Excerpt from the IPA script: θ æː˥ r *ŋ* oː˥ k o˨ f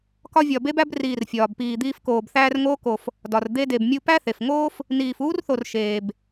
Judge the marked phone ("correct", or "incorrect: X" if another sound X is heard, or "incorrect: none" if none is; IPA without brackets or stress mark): correct